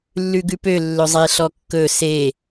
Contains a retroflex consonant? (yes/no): no